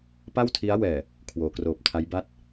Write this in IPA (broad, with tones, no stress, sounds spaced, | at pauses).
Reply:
p a˥˩ w tʰ i˦˥ a̯ w ɛː˨˩ | kʰ w oː˩˦ k r oː˨˩ p̚ tʰ a˦˥ j b a˥˩ t̚